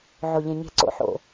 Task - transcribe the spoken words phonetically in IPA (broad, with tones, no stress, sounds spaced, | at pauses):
ʕ o˧˩ ʎ ẽ˧˩ ɲ e̤˥˩ ǀ o̰˥˩ ħ o̰˧˩